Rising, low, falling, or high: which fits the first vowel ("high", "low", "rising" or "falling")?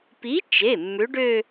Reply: rising